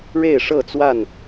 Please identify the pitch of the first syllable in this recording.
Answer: falling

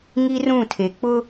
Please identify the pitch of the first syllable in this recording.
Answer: high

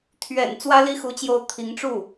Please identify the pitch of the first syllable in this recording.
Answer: low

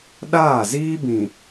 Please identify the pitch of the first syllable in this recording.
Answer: falling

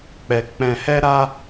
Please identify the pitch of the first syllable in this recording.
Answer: low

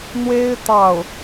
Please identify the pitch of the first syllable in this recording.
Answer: high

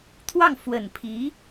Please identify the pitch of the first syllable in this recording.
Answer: falling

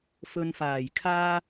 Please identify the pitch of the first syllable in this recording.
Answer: low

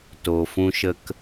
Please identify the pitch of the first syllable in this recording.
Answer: low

